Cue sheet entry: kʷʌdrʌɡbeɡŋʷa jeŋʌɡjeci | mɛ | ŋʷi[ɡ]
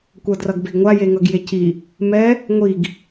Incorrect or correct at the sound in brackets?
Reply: correct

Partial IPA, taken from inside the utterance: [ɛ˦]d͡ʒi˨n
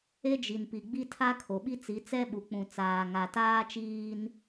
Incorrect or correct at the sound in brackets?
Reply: incorrect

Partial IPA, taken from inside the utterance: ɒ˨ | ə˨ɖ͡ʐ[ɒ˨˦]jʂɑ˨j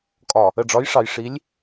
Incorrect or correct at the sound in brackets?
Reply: correct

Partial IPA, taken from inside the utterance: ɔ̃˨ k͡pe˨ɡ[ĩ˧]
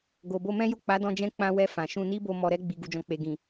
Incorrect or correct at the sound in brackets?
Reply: incorrect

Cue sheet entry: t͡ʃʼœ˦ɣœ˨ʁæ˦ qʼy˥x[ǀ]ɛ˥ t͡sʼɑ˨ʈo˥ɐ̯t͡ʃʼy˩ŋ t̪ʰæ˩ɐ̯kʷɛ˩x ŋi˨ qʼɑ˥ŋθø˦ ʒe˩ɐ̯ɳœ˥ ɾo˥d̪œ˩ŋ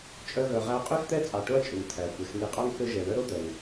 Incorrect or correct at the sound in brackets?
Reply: incorrect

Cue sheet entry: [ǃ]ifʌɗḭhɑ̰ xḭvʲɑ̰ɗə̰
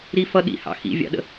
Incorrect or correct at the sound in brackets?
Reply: incorrect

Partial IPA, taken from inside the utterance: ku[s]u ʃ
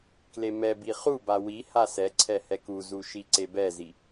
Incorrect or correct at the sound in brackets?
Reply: incorrect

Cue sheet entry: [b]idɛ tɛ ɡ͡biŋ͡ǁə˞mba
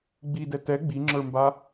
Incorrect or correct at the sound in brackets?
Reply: incorrect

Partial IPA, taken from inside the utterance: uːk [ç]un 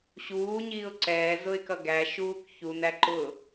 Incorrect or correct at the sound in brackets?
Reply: correct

